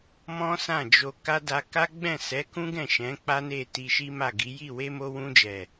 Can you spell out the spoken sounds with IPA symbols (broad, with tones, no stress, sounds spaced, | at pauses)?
m ɔ̃˦ s ã˦˨ d͡ʒ o˧ k a˦ d a˧ k a˦ ɡ͡b ɛ̃˦˨ s ɛ˨˦ k ũ˦ ɡ ɛ̃˦˨ ʃ ɛ̃˨˦ k͡p a˦ n e˦˨ t i˧ ʃ i˦ m a˦˨ ɡ i˨˦ j i˦˨ w e˧ m o˧ w ũ˧ d͡ʒ ɛ˨